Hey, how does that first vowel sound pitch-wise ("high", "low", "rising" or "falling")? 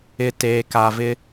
low